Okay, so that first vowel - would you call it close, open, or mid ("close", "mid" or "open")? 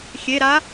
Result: mid